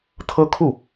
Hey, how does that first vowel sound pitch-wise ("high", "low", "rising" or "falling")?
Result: high